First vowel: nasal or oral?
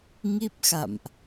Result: oral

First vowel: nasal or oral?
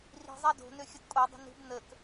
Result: oral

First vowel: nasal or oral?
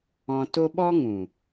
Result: nasal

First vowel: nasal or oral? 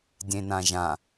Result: nasal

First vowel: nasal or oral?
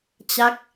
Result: oral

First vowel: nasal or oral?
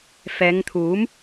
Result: oral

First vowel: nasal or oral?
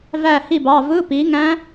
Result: oral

